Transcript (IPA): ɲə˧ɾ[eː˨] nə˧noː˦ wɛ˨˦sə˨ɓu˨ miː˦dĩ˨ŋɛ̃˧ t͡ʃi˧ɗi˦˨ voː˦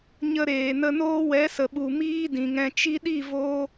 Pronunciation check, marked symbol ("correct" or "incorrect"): correct